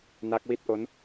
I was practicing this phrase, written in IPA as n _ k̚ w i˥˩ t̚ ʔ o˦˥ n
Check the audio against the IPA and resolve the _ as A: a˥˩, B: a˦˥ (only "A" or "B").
B